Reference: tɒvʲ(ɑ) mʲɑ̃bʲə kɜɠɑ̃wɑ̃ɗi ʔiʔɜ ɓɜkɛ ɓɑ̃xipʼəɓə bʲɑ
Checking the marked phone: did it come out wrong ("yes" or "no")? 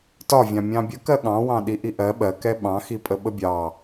yes